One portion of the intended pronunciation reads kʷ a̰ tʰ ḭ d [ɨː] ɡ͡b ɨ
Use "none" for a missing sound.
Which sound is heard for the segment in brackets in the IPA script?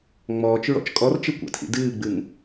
ɨː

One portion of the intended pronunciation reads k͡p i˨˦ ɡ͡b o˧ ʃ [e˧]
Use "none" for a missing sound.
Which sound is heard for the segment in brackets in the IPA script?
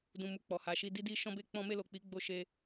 e˧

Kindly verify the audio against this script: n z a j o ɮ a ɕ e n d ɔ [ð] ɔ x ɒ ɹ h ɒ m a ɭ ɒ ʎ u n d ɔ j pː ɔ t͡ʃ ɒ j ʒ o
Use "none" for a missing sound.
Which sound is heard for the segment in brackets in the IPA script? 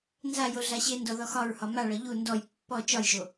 ð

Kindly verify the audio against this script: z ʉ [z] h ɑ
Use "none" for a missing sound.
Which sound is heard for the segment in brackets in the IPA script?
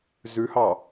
none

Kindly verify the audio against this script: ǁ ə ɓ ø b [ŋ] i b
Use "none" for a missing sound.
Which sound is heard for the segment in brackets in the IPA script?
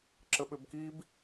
k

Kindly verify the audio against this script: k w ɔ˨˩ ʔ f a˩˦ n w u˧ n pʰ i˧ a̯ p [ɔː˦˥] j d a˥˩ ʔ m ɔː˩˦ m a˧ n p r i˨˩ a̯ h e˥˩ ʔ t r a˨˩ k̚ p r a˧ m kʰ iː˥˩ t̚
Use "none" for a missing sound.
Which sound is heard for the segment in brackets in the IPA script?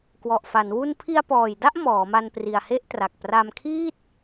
ɔː˨˩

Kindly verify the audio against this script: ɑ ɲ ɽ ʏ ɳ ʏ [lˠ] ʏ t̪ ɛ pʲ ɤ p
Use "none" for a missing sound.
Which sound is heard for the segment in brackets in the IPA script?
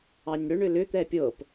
l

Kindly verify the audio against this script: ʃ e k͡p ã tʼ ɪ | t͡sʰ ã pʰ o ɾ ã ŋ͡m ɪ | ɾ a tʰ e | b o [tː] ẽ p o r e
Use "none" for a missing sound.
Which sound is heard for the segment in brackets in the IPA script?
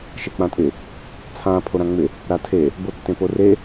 tː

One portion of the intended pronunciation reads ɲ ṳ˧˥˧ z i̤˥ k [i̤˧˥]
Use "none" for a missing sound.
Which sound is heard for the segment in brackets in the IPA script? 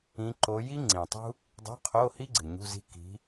i̤˧˥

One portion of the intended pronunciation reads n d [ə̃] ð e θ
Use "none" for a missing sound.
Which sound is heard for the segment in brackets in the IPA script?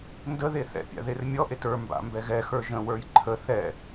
ə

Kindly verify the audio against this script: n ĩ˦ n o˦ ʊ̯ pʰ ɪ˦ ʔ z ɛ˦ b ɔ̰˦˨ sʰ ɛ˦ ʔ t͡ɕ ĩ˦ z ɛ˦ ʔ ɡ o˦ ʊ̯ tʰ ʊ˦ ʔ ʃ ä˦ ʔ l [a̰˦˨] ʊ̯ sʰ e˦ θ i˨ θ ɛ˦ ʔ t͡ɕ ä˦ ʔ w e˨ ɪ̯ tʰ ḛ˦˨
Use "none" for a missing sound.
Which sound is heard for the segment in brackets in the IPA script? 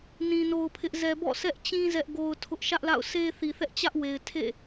a̰˦˨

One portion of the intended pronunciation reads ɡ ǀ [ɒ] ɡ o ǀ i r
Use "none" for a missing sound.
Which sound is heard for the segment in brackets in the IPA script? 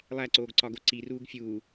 ɒ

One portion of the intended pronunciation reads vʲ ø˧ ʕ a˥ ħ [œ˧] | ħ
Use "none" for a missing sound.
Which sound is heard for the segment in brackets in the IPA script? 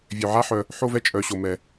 œ˧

